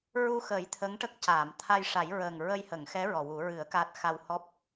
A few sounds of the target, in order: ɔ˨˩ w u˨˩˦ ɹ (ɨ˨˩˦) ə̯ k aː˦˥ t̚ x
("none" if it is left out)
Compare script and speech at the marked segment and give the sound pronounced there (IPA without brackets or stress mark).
ɨ˨˩˦